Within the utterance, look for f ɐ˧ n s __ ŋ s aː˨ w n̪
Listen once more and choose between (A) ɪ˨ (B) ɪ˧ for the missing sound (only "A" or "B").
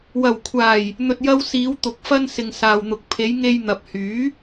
A